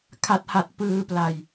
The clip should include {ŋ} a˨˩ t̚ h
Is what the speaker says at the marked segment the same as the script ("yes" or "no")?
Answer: no